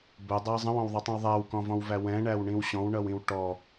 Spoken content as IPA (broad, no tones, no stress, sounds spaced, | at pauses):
b ʊ dˤ æ zˤ ə̃ w ɔ̃ w ðˤ ʌ tˤ ĩ w ðˤ æ w k ɔ̃ v ɔ̃ w v æ w ɛ̃ ɳ æ w ɳ ĩ w ɕ ɔ̃ w ɳ ʌ w ĩ w ʈ ɔ